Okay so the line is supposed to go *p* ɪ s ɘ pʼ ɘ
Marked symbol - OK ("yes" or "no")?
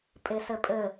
no